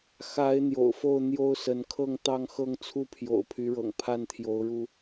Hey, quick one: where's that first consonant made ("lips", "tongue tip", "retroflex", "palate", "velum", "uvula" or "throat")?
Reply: velum